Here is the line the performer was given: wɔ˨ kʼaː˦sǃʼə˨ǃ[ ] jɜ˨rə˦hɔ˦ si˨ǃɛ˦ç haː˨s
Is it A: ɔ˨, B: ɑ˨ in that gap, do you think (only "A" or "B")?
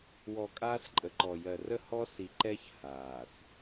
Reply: A